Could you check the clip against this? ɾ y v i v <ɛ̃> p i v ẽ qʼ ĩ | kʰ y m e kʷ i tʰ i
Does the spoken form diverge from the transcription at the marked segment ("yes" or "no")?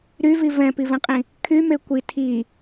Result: no